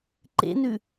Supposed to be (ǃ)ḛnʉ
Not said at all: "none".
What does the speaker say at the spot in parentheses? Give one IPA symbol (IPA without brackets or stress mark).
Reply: ǃ